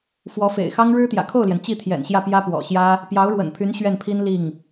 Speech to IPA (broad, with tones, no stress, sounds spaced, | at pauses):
f w ɔ˧˥ f ḛ˨˩ ɪ̯ x ɑ˥ ŋ ɻ ɻ̩˥ t̪ j ä̰˨˩ kʰ o˥˩ ʊ̯ l j ɛ˩ n t͡ɕ i˥˩ t̪ʰ j ɛ̰˨˩ n ɕ j ä˥˩ p j ä˥ p w ɔ̰˨˩ ɕ j ä˥ | p j ɑ˧˥ ʊ̯ ɻ w ə̰˨˩ n pʰ y˧˥ n ɕ ɥ ɛ˥˩ n pʰ i˥ n l i˥˩ ŋ